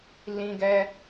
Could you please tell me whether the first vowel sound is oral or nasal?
nasal